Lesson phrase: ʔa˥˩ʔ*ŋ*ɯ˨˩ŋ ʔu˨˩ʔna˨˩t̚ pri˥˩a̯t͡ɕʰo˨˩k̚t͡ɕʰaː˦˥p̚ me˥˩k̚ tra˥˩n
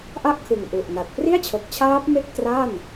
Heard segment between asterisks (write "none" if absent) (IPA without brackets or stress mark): kʰ